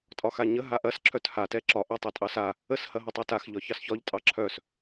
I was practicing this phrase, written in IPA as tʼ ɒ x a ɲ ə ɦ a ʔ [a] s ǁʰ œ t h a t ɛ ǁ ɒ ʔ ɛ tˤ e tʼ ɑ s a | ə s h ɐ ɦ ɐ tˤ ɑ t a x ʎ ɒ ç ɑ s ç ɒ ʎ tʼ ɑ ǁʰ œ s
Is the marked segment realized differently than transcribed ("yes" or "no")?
yes